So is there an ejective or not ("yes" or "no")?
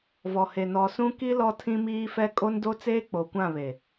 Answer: yes